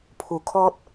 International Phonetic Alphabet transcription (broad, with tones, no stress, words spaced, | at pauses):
pʰu˧ kʰɔ˦t̚